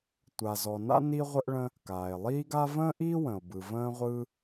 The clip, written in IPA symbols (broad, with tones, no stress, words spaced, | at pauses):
tʷa˩zɔ˩na̰˥ ni˥ʁʷə˥ʔɭə̃˥ | kaː˩e̯lˠiː˥ɡa˥ və̃ː˥ʔiː˥wə̃˩o̯bɯ˩ və̃ː˥ʁʷɯ˥